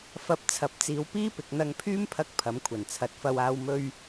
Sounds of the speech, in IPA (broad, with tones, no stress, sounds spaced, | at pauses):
f ɐ˧ p̚ t͡sʰ ɐ˨˥ p̚ t͡s iː˨˧ w p iː˥ p ɪ˨ k̚ n̪ ɐ˧ ŋ pʰ yː˥ m pʰ ɐ˧ k̚ pʰ ɐ˨˥ m kʷʰ ɐ˨˩ n t͡sʰ ɐ˨˥ t̚ f ɐ˧ w aː˨ w m ɵ˧ ɥ